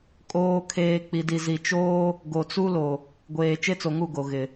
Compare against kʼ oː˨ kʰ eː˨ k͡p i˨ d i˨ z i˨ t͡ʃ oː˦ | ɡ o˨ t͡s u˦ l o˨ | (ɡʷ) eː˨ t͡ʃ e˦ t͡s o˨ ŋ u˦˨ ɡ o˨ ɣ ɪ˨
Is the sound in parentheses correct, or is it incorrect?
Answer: correct